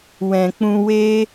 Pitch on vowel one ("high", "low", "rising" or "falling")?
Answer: low